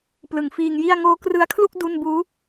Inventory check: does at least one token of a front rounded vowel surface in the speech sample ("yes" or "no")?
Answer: no